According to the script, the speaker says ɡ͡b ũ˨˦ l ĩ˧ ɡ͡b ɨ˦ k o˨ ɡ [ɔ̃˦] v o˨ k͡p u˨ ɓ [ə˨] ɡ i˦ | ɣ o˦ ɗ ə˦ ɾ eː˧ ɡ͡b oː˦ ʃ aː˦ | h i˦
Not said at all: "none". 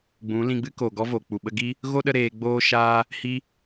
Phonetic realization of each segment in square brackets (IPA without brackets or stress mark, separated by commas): ɔ˦, ə˦